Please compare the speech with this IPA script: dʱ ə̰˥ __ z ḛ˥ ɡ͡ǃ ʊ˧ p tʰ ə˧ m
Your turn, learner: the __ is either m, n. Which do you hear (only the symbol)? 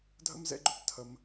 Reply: m